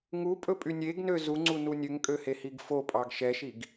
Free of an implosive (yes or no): yes